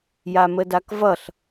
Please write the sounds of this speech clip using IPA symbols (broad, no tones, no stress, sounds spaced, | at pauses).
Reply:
j a m ə d a k v ʌ ɬ